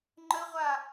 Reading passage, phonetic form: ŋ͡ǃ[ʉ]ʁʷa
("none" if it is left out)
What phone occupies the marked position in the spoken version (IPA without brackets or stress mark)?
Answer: ə